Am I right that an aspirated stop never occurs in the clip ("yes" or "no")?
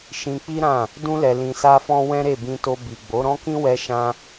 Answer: yes